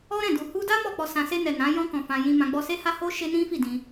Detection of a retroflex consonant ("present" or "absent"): absent